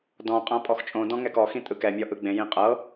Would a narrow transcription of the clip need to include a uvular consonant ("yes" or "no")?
yes